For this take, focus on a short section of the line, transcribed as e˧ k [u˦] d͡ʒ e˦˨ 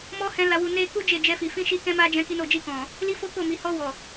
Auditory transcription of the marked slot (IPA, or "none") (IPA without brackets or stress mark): u˦